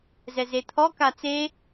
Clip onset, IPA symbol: z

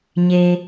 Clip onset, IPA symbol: ɲ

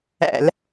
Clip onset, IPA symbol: æ̰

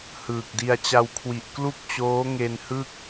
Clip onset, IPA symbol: h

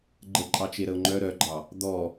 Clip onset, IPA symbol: ɡ͡ǃ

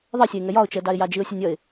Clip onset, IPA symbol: ðˤ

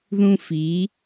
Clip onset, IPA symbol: ð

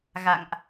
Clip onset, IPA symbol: ɣ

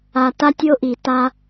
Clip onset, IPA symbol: a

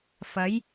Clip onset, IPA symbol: f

